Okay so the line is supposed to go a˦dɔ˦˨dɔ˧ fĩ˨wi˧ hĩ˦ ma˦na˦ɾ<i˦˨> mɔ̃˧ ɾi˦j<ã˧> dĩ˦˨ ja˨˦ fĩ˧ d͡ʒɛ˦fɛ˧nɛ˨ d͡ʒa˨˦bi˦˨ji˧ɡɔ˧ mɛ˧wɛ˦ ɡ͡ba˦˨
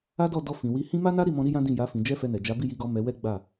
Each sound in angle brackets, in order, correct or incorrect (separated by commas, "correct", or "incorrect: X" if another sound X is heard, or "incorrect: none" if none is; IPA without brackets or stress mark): correct, incorrect: ã˦